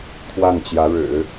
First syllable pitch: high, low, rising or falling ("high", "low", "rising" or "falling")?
falling